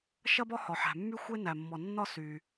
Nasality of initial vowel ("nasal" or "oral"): oral